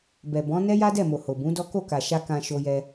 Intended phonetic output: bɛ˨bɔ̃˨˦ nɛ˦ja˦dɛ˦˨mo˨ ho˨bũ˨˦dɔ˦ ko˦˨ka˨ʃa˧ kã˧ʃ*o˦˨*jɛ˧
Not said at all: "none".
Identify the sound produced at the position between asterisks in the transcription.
o˧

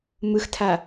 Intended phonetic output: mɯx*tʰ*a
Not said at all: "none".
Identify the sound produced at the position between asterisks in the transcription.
tʰ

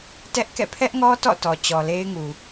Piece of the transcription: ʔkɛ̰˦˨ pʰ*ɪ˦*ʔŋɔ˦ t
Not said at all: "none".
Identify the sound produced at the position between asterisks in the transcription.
ɛ˦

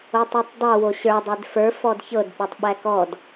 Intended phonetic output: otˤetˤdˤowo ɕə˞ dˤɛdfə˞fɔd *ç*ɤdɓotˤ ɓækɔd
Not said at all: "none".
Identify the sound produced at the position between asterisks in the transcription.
ç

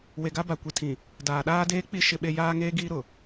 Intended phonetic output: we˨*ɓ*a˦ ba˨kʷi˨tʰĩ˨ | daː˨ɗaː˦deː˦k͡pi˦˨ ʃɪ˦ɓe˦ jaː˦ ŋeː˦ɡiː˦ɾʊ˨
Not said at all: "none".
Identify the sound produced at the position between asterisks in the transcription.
ɡ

